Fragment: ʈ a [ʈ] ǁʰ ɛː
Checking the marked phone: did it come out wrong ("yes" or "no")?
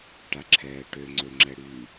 yes